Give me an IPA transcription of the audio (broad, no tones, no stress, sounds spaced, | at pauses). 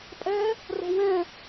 pʼ ɛ | r o̤ w ɛ̃